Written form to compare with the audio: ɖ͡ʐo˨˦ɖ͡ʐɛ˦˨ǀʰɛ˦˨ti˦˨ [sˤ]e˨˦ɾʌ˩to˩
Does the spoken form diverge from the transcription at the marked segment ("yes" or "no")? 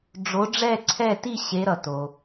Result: yes